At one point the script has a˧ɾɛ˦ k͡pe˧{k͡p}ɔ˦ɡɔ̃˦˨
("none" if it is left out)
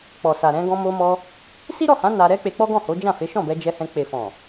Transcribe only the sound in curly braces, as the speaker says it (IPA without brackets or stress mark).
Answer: k͡p